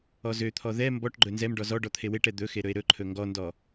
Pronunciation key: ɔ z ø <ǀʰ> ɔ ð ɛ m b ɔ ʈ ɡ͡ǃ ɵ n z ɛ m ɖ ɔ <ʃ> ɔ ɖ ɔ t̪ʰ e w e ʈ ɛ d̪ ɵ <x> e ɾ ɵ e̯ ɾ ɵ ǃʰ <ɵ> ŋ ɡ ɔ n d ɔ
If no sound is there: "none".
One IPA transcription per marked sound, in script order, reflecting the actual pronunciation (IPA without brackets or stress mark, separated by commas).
t̪ʰ, z, x, ɵ